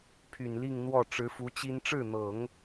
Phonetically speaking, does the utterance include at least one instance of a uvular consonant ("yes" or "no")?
no